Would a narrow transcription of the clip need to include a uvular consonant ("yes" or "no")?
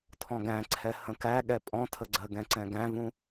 no